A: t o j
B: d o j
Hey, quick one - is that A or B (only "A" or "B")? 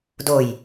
B